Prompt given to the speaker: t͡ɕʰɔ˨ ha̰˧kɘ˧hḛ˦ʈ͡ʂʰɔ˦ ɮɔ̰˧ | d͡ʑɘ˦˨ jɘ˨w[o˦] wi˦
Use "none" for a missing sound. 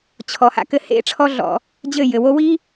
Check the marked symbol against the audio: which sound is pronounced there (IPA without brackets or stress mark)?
o˦